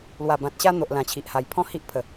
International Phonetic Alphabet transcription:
l w a˨˩ b ã˨ t̚ ɕ a˧ n̪ o˨ ʔ l ã˨˩ t͡ɕʰ i˨ ʔ h a˨˩ j pʰ ɔ̃˥˧ h i˦ ʔ pʰ ə˨˩

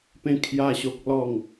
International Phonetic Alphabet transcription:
p ẽ˥˧ kʰ j a˥˧ ɕ o˦ k̚ l ɔ˥˧ ŋ

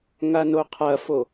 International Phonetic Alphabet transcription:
ŋ a n o qʰ ɐ f o

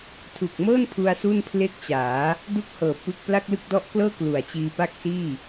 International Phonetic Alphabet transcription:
tʰ u˨˩ k̚ m ɤː˥˩ n pʰ u˧ a̯ s u˥˩ n pʰ l e˥˩ k̚ t͡ɕ aː˩˦ | d u˥˩ k̚ h ɤː˨˩ p ɯ˥˩ k̚ p l a˥˩ k̚ l ɯ˥˩ k̚ d ɔ˦˥ ʔ k l ɤː˥˩ k l u˨˩ a̯ t͡ɕ iː˧ p a˥˩ k̚ s iː˥˩

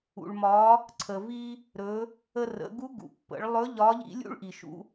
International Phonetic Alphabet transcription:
ṵ˩ ɭ m ɒ˩˧ | ǀʰ ə˩ v i˧ | ɾ ɵ˩˧ | ə˧ r ə̰˩˧ ɡ u˧˥ ɡ ṵ˩ pː ə̰˩˧ ɭ lˠ ɵ˧˥ ʎ ɒ˧˥ ʎ ḭ˥ lʲ ṵ˥ ɭ ʔ i˩ ʃ ṵ˩˧

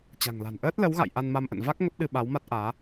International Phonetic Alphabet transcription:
t͡ɕ a̤˨˩ ŋ l a̤˨˩ n ʔ əː˦˥ t̚ l ə˨˦ w ɣ a̰˧˨ j ʔ a˧ n m a˧ m ʔ ə̰˧˨ n v a˦˥ k̚ ŋ ə˦˥ p̚ ɗ ɨ˧ ɓ a˨˦ w m a˦˥ t̚ ʔ aː˨˦

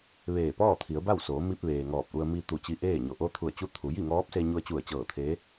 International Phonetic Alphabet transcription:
ʋ eː˧˩ p ɔː˥˨ t̪ʰ i˩˧ ə̯ b a˥˨ w s oː˩˧ m i˧ p̚ ʋ eː˩ ŋ ɔː˧˩ p̚ ʔ u˧ ə̯ m i˧ t̪ u˧˩ t͡ɕ i˧ ʔ eː˥˨ ɲ o˧˩ ʔ o˧ t̪ʰ u˧˩ ə̯ t͡ɕ u˧˥ t̪ʰ u˩˧ j i˥˨ ŋ ɔː˧˥ p̚ s e˧ ɲ u˧ ə̯ t͡ɕ u˧˩ ə̯ t͡ɕ ɤː˧˩ t̪ʰ eː˧˥

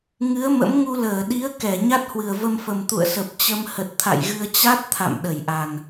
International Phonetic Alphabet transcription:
ŋ ɨ˨˦ ə̯ m ə̰˧˥ m ŋ u˧ l əː˧˩ ɗ i˨˦ ə̯ k ɛ˧˩ ɲ a˦˥ t̚ h w ɨ˨˩ ə̯ v ə˧ m f ə˨˩ m t̪ ṵ˧˨ ə̯ s ə˨˩ p̚ t͡ɕ ə˧ m h ə˨˩ t̚ t̪ʰ a̰˧˨ j ɣ ɨ˧ ə̯ t͡ɕ a˦˥ t̚ t̪ʰ a̰˧˨ m ɗ ə˧˩ j ʔ a˨˩ n

